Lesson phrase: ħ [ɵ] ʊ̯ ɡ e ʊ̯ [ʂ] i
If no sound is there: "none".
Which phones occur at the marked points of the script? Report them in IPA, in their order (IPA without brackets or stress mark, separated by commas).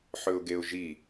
ɵ, ʒ